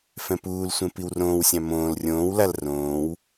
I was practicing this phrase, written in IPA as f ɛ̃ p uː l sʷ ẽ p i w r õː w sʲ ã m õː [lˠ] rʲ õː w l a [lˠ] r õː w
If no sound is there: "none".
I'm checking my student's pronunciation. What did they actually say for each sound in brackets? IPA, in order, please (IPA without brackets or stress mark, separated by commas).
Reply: l, l